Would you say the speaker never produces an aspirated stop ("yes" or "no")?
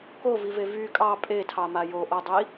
no